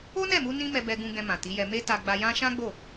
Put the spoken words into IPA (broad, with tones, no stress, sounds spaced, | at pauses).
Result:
o˦ n ɛ˦˨ m u˧ n ĩ˦ m ɛ˧ b ɛ˧ ɡ ũ˧ ɡ ɛ̃˧ m ã˨ t i˨˦ j ɛ˧ m e˧ t a˧ ɡ͡b a˧ j ã˦ ʃ ã˦ ɡ͡b o˦˨